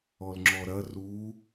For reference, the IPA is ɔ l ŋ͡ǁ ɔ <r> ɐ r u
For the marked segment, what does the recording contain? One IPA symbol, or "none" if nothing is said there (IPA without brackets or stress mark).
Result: ɾ